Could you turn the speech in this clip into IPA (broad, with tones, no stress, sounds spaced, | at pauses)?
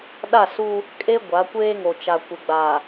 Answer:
ɗ a˦˨ s u˦ | kʼ e˦ ɡʷ a˨˦ kʷ eː˦ ŋ o˨ t͡ʃ a˨ kʷ ɪ˨ ɡ͡b a˨